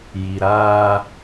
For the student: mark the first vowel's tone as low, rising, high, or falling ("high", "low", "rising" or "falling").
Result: low